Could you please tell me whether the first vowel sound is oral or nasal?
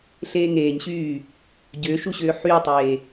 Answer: oral